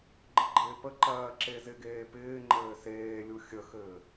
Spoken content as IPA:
ɡ͡ǃ ɘ ɡ͡ǃ ɪː p ə ǃ ɜː ǁ e z ɪ ɡ eː p ɪː ŋ͡ǃ ɘː s eː lʲ u xʲ ə x ɘː

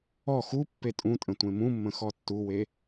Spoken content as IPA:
ɔ x u pː e tʼ ũ tʼ ə̃ tʷ ẽ m ũ mː ə̃ x ɔ tː u w e

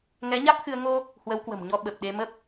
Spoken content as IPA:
ŋ ɛ˨˦ ɲ a˦˥ k̚ x ɨ˧ ə̯ ŋ o˧ | h w ə˨˦ w k w ə̤˨˩ m ɲ ɔ˨˦ ɓ ə˨˩ p̚ ɗ e˧ m ə˦˥ p̚

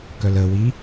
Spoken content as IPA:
k œ l ə w i

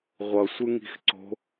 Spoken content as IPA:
ʁʷ ʌ sʷ ɯ ŋ i̤ x ǀ o̤

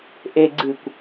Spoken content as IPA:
ʔ e ɡ͡ǀ ɨ kʷ

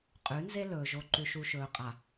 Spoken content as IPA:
qʼ ʉ˨˦ n z e˦ l ɵː˨ ʒ o˨ ǃ ʉ˨ ʃ u˨ ʃ ɵː˨ qʼ a˨

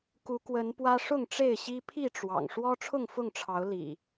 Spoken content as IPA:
k u˨˦ k w ə˨˦ n p w ä˦ ʂ ʊ˥˨ ŋ ʈ͡ʂ e˥˨ ɪ̯ ɕ i˦ pʰ i˥˨ ʈ͡ʂ w ɑ̰˨˩ ŋ ʂ w ɔ˦ ʈ͡ʂʰ ʊ˥˨ ŋ f ʊ˥˨ ŋ ʈ͡ʂʰ ɑ˨˦ ʊ̯ l ḭ˨˩

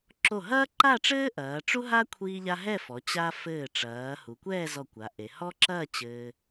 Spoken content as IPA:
ǁ o˧˩ ɦ ɐː˥ ǃ a˥˧ ʈ͡ʂ ɘː˥ ʔ ɐː˩˧ ʈ͡ʂ u˥ ɦ a˥ kʷʰ iː˥ ʎ a˥ ɦ ɛ˥˧ f ɔ˩˧ t͡ɕ a˧ f ɘː˧˩ ʈ͡ʂ ɐː˩˧ h u˩˧ kʷ ɛː˥˧ z ɔ˧˩ kʷ a˩˧ ʔ e˩˧ h ɔ˥ ǁ ɐː˥˧ t͡ɕ ɘː˧

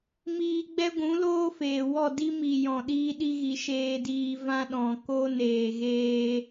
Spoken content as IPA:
m iː˧ ɡ͡b ɛ˦ ɡʷ ũ˨˦ l oː˦ f eː˨ w ɔ˦˨ d i˦ m i˨ j ɔ̃˨ ɗ iː˧ ɗ i˧ ɣ i˨ ʃ eː˧ d iː˧ v ã˦ ɗ ɔ̃˨ k o˦ n eː˨ ɣ eː˧

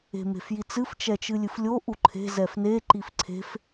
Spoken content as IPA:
e̤ m e̤ f j i t͡s ɨ f t͡ʃ ɛ t͡ʃ ɨ lʲ ɨ f lʲ o ʔ u ǃʰ e̤ z ɛ f n e ǃ i f ǀʰ e̤ f

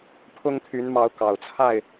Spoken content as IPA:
pʰ ʊ˦ ŋ t̪ʰ y˨˦ n m ɑ˨˦ ʊ̯ k ɑ˨˩ ʊ̯ t͡sʰ a˥˨ ɪ̯

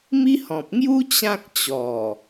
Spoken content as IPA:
m i˦ h ɔ̃˨ p̚ ŋ j u˦ t͡ɕ ã˦ k̚ t͡ɕ ɔ˨˩

